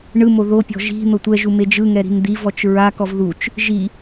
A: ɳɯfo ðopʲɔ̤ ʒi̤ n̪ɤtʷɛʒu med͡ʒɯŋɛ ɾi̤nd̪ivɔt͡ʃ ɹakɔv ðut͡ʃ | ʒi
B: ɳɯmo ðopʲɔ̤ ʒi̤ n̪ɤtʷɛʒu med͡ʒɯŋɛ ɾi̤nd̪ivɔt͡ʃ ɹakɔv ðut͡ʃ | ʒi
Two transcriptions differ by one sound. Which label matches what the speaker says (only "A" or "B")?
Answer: B